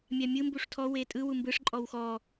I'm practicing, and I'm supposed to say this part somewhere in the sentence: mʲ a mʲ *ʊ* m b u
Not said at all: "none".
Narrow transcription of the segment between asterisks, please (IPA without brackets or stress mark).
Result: ɯ